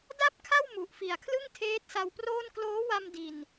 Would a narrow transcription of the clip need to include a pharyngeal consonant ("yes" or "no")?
no